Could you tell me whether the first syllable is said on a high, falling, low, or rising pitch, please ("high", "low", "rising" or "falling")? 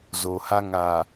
low